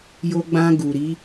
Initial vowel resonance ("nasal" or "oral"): oral